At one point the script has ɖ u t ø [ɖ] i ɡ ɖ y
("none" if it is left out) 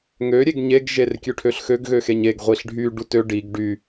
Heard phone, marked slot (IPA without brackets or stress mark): ɖ